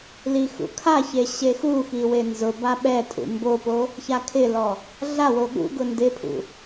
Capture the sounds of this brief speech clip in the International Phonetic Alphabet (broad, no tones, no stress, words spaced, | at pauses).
lixṵkʰaçe ɕexuxi wenzʊba ɓɛtʼṵ mbopo | çakʰɪlɔ | ɮawo ɠṵɡʊ ndɪpʰṵ